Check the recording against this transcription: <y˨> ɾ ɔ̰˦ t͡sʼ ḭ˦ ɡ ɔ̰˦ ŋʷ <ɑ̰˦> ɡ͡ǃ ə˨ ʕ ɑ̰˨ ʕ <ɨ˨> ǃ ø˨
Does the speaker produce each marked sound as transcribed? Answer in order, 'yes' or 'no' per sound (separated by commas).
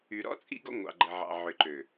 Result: yes, no, no